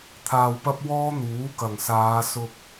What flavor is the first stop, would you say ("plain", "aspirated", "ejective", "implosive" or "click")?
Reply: aspirated